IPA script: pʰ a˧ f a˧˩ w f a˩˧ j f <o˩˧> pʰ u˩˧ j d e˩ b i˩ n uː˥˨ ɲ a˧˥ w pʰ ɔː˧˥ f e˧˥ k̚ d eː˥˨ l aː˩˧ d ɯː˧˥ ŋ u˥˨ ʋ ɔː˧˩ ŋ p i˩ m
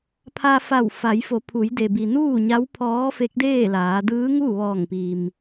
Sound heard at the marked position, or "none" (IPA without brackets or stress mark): o˩˧